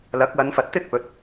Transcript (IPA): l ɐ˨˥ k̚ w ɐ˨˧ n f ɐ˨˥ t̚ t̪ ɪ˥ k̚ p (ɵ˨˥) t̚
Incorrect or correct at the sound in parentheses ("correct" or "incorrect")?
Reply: correct